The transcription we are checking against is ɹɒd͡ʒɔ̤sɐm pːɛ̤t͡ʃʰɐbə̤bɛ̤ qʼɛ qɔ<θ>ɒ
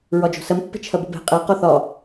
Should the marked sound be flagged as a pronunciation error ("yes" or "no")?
no